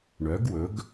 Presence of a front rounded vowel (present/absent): present